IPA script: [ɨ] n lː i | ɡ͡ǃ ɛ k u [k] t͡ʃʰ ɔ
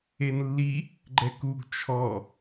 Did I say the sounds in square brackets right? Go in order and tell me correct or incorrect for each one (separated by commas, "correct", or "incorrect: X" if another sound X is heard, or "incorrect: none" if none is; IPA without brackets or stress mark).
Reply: incorrect: e, incorrect: ɡ